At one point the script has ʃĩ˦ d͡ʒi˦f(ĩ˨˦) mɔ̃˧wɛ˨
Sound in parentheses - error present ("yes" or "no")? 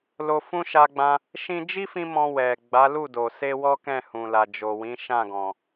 yes